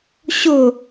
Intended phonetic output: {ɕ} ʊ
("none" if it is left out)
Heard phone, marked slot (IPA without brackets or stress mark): ɕ